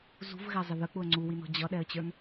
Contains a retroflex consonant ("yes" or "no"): no